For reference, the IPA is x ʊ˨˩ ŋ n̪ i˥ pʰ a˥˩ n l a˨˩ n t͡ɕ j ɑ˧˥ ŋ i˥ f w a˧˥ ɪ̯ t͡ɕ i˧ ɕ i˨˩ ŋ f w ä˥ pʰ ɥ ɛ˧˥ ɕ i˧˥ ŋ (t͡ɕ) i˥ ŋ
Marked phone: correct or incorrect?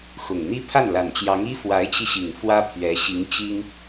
correct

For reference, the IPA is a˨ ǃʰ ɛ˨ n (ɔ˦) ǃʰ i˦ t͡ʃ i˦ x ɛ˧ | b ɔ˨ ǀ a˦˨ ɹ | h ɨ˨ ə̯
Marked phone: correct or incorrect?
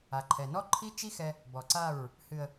correct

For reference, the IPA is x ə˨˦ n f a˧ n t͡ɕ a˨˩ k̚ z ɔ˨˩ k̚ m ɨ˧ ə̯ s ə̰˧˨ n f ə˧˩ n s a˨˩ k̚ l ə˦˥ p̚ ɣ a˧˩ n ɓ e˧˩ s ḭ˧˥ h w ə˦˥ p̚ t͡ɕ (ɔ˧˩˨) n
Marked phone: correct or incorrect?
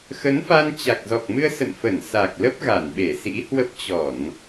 correct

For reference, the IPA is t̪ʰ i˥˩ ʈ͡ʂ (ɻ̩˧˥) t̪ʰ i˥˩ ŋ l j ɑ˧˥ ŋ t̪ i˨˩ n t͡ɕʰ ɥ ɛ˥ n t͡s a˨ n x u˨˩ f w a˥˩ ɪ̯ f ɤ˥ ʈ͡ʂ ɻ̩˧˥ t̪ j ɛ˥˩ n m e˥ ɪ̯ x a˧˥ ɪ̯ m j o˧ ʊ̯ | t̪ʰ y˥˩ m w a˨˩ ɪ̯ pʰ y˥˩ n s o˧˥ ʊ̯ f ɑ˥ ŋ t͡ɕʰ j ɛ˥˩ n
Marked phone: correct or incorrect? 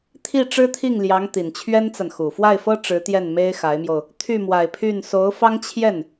incorrect: ɻ̩˥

